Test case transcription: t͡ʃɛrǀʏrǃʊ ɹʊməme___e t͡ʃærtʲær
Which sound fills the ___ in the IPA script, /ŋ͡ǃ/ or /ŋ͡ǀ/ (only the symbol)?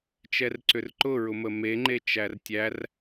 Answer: ŋ͡ǃ